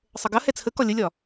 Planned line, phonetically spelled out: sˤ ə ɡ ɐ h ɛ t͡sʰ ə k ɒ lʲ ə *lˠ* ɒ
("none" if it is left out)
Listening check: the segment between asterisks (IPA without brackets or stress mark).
lʲ